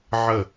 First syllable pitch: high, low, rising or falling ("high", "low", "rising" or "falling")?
falling